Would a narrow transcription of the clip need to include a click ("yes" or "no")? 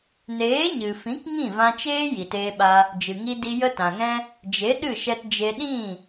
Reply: no